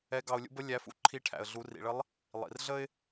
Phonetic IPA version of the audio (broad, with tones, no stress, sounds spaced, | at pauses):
ɛ˧˥ ɡ ɑ˧ ʊ̯ lʲ ṵ˧˥ b ə˥ lʲ æ˧˥ f ṵ˥ ǃʰ i˧˥ ʈʰ æ̰˩ ə̯ ɮ u˩˧ r ḭ˩ ɭ ə˧˥ lˠ | lˠ ḭ˩ r ɮ ə˥ ɪ̯